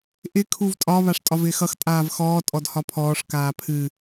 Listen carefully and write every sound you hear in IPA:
ʔɪ kʰuvtʼɒ βaʂtʼɒvɪːxʌx tʼaːvxɔː tʼɔdhɒpʰɔːʂ kaːpʰɨ

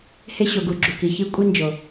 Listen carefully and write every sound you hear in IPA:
he˦ɕo˨ ɡu˨ɡ͡ǁu˨ki˨ çi˦ kʷʼi˦nd͡ʒo˨

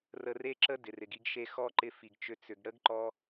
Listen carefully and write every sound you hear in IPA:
rə˧re˦ǁə˦ dɪ˨rɪ˨ɡi˧ɡʃe˧ xɔ˦ ǃɪ˧ fi˨ɡt͡ʃʏ˧ t͡sʏ˨ɡ ɽə˦ɡǃɔ˧

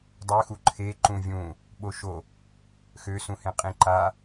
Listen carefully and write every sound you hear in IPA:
dˤøxu ǃʰe ǃũvʲũ | ɓoʃo | xøsũhẽ qʼĩǃa

